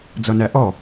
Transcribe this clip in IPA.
d͡zʌnæʔɔ

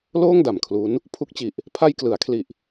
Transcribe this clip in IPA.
loː˥˩ŋda˨˩mkʰlu˦˥n | pʰu˦˥k̚t͡ɕi˨˩ʔ | pʰa˧jklɯ˩˦a̯kʰli˨˩ʔ

